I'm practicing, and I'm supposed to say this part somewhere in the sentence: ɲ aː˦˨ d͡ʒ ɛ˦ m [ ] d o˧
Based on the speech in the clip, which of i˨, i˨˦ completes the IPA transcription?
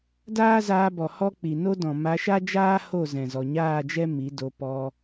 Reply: i˨˦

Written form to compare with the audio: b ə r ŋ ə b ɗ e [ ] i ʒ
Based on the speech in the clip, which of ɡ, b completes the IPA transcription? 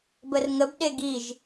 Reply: ɡ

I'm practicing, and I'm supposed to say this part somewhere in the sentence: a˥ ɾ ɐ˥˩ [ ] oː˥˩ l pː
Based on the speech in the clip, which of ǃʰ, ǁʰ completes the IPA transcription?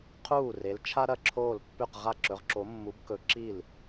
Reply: ǁʰ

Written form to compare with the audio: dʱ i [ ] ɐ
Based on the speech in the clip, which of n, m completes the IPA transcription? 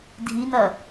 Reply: n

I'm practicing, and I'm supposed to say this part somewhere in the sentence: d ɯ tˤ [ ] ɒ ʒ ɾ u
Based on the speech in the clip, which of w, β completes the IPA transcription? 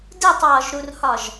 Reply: w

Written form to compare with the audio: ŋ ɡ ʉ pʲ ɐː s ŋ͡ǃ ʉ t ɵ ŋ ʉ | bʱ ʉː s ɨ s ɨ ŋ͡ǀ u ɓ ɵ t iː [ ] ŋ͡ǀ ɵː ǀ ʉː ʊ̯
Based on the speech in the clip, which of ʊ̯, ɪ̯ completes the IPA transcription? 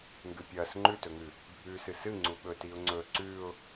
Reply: ʊ̯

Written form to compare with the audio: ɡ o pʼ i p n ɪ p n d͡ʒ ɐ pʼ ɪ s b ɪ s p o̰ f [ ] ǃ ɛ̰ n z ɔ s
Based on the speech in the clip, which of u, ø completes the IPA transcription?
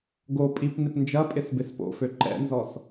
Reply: ø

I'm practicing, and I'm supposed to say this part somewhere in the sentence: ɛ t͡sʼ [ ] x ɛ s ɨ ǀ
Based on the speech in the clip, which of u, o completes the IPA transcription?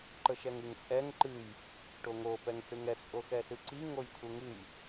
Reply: o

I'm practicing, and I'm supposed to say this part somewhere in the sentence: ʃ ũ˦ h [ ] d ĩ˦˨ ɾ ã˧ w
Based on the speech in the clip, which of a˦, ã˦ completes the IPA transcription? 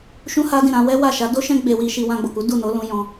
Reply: a˦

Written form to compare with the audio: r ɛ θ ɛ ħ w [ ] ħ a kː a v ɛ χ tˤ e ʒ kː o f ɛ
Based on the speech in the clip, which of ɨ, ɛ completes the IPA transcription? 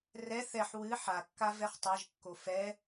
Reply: ɨ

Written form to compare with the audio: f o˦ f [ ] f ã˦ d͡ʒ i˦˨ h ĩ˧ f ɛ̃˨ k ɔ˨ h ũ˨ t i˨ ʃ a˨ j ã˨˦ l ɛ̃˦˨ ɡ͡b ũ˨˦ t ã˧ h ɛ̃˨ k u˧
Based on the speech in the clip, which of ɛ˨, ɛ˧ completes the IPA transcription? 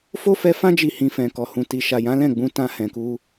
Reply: ɛ˧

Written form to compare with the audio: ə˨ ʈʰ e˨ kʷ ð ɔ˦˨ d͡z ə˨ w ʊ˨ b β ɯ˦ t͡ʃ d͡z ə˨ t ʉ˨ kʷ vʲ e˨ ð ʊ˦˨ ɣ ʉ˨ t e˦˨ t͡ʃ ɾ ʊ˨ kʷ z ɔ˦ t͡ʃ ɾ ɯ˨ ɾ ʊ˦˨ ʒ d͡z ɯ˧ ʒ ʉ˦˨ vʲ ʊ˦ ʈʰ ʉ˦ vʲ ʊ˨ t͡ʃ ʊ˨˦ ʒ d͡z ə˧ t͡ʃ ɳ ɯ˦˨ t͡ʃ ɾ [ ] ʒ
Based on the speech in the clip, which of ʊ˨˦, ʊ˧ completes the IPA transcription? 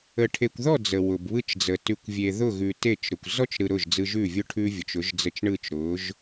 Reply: ʊ˨˦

